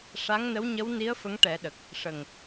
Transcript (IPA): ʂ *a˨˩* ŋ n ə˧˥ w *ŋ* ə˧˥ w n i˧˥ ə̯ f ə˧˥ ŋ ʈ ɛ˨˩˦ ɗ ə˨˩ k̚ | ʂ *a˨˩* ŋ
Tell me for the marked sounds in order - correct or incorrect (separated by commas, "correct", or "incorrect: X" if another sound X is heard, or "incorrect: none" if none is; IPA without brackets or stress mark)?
incorrect: a˧˥, incorrect: ɲ, incorrect: ə˨˩